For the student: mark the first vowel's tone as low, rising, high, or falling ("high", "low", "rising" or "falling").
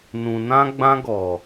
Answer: low